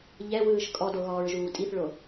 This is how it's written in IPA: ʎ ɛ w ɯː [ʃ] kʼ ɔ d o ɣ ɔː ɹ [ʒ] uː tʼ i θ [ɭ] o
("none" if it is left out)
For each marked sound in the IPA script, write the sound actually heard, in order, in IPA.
ʃ, ʒ, ɭ

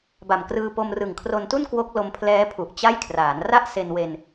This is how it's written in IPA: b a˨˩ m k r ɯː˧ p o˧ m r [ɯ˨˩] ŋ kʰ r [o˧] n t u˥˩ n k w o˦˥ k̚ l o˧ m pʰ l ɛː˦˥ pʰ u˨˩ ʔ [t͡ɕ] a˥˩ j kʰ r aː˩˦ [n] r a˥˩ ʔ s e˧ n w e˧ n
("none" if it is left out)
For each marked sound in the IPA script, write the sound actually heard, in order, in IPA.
ɯ˨˩, o˧, t͡ɕ, n

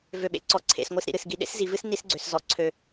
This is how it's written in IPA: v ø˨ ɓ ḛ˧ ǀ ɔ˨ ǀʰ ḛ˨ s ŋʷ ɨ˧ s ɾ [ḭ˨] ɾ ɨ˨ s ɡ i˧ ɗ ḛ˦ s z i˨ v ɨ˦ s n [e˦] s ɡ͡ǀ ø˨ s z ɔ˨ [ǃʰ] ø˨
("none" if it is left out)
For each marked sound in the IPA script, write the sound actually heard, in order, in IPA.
ḭ˨, i˦, ǀʰ

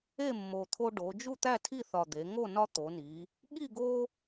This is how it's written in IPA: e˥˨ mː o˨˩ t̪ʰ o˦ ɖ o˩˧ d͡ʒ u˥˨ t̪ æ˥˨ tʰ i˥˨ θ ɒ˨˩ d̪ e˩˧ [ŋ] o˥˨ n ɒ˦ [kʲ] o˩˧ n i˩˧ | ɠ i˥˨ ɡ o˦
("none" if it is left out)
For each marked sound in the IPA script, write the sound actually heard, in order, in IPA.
ŋ, t̪

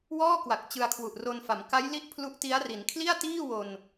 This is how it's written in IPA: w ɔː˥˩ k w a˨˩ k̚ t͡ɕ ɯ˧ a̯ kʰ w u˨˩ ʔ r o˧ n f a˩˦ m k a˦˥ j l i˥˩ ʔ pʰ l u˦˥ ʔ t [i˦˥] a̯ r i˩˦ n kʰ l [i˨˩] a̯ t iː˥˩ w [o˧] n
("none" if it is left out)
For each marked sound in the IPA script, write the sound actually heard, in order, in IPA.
i˦˥, i˥˩, o˧

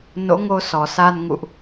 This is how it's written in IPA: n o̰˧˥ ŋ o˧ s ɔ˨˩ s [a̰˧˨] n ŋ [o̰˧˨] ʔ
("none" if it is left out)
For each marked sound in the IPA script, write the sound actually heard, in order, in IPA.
a˧, ṵ˧˨

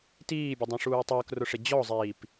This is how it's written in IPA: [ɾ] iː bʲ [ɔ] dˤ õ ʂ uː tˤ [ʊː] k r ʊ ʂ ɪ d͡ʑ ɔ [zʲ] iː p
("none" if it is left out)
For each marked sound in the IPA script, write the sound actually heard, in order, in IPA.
t, ʊ, ʊː, zˤ

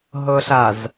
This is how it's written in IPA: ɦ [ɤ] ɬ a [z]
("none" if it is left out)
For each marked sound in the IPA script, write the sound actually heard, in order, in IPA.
ɤ, z

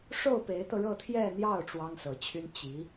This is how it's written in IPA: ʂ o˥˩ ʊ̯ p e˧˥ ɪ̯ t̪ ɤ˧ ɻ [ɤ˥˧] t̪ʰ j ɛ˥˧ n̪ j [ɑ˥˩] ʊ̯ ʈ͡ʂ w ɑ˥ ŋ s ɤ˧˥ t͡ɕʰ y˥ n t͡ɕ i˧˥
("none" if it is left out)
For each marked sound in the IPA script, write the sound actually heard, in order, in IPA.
ɤ˥˧, ɑ˥˩

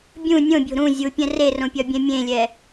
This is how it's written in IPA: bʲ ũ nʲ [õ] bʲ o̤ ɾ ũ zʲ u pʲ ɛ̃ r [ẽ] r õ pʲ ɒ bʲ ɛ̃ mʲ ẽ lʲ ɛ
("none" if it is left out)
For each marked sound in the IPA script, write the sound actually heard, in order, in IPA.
õ, e

